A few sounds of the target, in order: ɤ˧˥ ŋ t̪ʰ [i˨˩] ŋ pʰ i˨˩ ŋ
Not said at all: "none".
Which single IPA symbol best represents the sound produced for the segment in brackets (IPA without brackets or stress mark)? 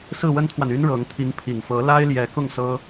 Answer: i˧˥